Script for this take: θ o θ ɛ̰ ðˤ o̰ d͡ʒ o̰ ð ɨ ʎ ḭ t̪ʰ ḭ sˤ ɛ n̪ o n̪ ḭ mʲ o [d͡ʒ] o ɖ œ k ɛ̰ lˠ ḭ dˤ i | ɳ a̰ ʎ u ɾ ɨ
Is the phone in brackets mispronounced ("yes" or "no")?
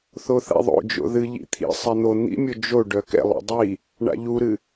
no